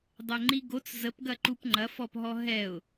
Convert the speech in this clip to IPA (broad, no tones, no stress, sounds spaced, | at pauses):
dˤ ɛ ŋ͡ǃ i ɡ o t͡s z ə p ɡ ɐ ǃ u p ŋ͡ǃ ɐ f ɔ p ɦ ɔ ɦ ɛ ʊ̯